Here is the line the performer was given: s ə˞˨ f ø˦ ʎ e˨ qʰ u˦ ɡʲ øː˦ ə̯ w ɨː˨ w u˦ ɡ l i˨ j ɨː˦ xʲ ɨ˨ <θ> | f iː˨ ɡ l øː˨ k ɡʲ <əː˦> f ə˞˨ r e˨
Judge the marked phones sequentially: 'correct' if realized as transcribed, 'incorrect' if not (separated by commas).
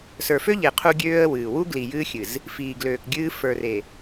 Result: incorrect, incorrect